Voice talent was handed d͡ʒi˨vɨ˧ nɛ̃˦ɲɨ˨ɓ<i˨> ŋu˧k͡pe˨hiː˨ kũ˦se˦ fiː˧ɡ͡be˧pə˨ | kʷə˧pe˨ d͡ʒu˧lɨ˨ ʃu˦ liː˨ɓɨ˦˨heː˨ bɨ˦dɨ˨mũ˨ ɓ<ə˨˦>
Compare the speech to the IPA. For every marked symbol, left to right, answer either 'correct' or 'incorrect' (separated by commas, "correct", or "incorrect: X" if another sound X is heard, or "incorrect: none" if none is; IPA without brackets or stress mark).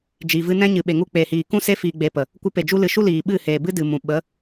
incorrect: e˨, correct